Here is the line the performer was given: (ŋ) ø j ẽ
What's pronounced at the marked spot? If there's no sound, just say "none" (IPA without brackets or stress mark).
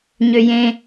ɲ